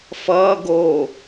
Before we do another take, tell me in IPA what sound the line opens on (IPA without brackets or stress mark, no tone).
f